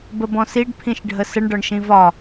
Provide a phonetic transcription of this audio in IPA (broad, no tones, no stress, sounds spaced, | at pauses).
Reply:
b ə b ɔ̃ s i ɖ pʰ ĩ ʃ ɖʱ ə s ə ɳ ɖ ɒ ɳ ʃ ĩ v ɒ